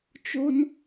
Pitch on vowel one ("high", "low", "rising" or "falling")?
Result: high